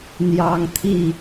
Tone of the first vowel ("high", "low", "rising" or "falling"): high